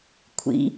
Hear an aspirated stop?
yes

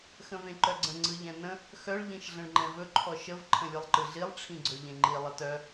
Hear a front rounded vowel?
yes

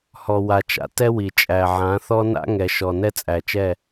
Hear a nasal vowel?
yes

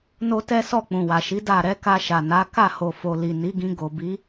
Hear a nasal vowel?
yes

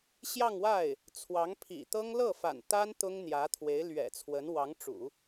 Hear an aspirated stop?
yes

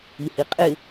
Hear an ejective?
yes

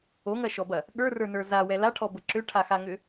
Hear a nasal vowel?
no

